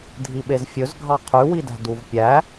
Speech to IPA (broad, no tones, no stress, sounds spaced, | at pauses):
dʱ i ɓ e z fʲ ɵ z ɡʱ ɑ qʰ ʉ w i d æ̤ d u v pʲ æ